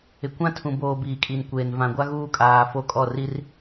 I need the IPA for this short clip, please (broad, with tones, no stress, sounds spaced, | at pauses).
ɪ˨ kʷ ã˦ tʰ ũ˨ b oː˨ b iː˨ kʼ i˨ n kʷ eː˨ n v ã˨ ɡʷ a˦ ɣ uː˦ kʼ aː˨ f o˦˨ kʼ ɔ˦˨ r i˦ r